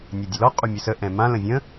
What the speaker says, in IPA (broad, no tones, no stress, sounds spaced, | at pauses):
nʲ a dʲ ə l ɔ qʼ u mʲ ə s ə ʔ ɛ̃ m ã l ə̃ vʲ ə̃